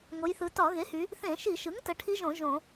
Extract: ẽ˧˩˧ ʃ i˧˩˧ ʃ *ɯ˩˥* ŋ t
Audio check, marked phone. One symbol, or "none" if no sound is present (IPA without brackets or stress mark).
ɯ˩˥